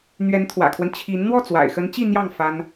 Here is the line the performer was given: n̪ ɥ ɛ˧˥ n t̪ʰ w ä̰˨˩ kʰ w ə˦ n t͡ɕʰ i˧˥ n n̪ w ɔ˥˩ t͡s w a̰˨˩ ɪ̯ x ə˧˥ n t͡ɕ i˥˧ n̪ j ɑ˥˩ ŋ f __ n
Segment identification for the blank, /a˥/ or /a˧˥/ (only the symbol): a˥